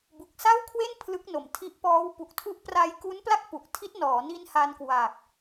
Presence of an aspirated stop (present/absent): present